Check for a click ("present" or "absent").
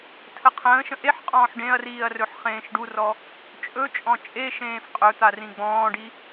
absent